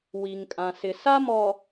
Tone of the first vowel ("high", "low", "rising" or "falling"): low